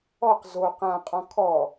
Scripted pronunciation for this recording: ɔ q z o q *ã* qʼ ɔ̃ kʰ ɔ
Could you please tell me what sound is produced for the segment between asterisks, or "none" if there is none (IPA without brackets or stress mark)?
ã